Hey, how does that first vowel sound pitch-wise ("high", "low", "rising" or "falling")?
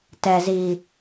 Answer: low